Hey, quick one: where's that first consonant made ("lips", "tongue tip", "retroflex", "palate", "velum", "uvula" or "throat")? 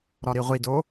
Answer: tongue tip